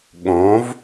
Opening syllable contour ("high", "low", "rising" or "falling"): rising